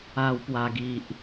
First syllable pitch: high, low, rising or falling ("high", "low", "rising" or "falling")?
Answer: low